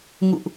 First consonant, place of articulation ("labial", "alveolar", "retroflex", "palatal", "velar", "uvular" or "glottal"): velar